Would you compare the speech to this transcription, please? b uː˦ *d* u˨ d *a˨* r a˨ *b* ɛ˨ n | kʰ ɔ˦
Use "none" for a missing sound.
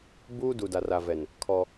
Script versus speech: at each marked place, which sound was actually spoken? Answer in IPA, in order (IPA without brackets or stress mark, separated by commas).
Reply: d, a˨, v